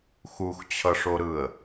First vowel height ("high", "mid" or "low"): high